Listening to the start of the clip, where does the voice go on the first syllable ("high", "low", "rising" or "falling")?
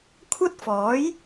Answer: high